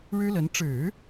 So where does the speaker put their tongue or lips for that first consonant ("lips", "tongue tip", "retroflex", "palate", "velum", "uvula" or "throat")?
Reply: retroflex